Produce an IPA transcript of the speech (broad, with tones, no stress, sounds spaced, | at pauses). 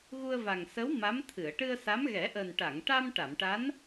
ɣ u˧ ə̯ v a˨˩ ŋ s ə˧˥ w m a˧˥ m t̪ʰ ɨ˨˩˨ ə̯ ʈ ɨ˧ ə̯ s a˧˥ m ɣ ɛ˨˩˦ ʔ əː˨˩ n ʈ a˨˩˨ ŋ ʈ a˧ m ʈ a˨˩˨ m ʈ a˧˥ n